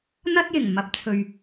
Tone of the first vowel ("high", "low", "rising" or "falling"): high